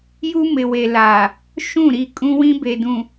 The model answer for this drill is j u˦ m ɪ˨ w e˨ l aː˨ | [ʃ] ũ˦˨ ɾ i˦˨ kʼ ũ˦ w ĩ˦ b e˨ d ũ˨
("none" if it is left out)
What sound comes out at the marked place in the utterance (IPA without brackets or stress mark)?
ʃ